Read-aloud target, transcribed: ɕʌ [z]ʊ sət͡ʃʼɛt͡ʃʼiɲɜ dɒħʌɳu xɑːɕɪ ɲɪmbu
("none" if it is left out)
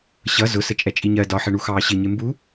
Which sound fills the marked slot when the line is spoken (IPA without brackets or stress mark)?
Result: z